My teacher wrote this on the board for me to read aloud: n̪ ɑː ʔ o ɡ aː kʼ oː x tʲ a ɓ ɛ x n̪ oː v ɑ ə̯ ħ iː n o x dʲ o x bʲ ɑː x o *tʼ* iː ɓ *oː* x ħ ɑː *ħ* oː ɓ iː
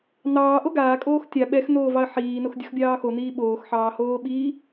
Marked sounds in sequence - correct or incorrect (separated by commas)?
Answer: incorrect, correct, incorrect